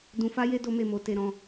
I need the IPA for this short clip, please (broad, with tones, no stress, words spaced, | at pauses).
dũ˧fa˦je˦ do˦me˦˨ mo˧te˧ ɾɔ̃˧